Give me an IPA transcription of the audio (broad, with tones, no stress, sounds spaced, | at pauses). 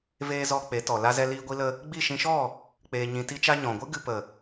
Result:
v eː˧ z ɔ˧ k͡p e˨˦ t ɔ˨ l a˧ z ɛ˧ l iː˧ ɡʷ i˧ l ə˧ | ɡ͡b i˦˨ ʃ ĩ˧ ʃ ɔ˦˨ | k͡p eː˧ ɲ ĩ˧ t i˦ t͡ʃ a˦ ɲ ɔ̃˨ ɡʷ ɨ˦ ɡ ɨ˧ p ə˨